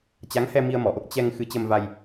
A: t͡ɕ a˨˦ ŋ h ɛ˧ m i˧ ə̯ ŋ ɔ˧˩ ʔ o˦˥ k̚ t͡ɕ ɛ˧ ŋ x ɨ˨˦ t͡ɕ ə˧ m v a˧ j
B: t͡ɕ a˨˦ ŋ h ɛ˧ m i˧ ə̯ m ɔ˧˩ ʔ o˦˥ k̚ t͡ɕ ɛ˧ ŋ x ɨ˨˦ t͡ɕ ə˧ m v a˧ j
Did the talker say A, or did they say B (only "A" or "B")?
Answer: B